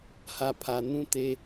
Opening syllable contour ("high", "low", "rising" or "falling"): low